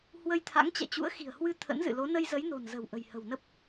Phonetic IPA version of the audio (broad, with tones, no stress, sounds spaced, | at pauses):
h w ə˧ j t̪ʰ a̰˧˥ ŋ t͡ɕ ɛ̰˧˨ t͡ɕ ṵ˧˥ ə̯ x i̤˨˩ ə̯ h w ɨ˧ t̪ʰ ə̰˧˥ n z ɨ̰˧˨ l o˨˦ n ə˧ j z ə˨˦ j n o̤˨˩ n z ə̤˨˩ w ʔ ə̤˨˩ j h ə̤˨˩ w n ə˦˥ p̚